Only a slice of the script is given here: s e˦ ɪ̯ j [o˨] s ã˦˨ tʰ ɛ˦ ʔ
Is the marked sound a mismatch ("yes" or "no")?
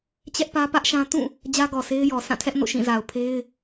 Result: yes